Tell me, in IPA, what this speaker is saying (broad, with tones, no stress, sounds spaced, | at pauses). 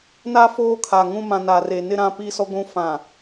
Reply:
n a˦ f oː˦ kʰ a˨ ŋ ũ˦ m ã˨ n a˨ r e˨ n ɪ˦ ɾ ã˦ p i˦ s ɔ˦ ɡʷ ũ˦ f ã˨